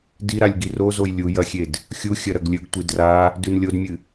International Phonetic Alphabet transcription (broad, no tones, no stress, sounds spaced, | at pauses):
d i ɾ a lʲ ɡ i r o z o j lʲ u j ɐ xʲ e d | xʲ u xʲ ɐ ɾ ɐ ɡ lʲ ɵ ɡ tʷ i d r a | d ʉ n lʲ o d mʲ ɨ